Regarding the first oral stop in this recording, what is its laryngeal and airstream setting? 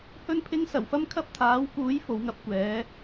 aspirated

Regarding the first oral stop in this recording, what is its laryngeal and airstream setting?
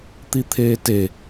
plain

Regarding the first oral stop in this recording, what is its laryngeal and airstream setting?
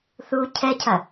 aspirated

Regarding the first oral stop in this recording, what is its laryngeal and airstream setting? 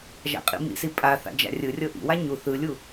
ejective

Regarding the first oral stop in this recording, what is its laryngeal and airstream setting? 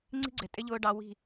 click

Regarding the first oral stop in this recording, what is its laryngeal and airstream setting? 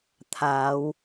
aspirated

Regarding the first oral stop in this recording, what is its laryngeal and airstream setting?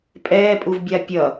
ejective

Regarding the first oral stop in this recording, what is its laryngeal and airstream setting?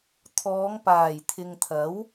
aspirated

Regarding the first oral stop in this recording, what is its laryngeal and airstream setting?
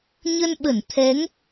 implosive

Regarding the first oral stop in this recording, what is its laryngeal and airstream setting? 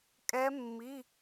ejective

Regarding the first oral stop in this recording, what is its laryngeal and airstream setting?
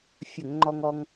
click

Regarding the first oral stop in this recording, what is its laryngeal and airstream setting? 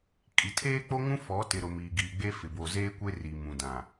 ejective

